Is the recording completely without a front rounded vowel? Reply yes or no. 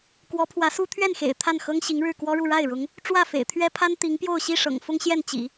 yes